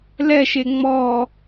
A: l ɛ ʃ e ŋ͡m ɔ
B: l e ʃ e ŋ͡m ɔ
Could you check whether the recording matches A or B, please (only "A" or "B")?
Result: A